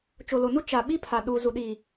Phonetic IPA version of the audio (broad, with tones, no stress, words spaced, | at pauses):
t͡ʃo˨lo˨nu˦ t͡ʃa˨ ɓi˦pʰa˨ɗu˨zu˨ ɗiː˨